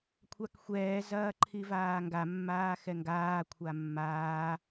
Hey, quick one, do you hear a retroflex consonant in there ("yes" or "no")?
no